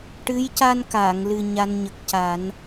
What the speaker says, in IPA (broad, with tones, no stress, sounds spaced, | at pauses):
ʈ ɨ˧˥ j c a˧ n k aː˨˩˨ ŋ l ɨ˨˩ ɲ a˧ n ɲ ə˨˩ k̚ c a˨˩˦ n